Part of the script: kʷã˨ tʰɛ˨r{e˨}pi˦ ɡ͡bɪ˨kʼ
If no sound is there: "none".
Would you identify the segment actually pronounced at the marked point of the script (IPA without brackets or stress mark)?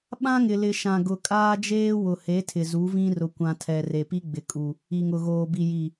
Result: e˨